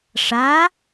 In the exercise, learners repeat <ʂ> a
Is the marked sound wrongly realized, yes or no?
no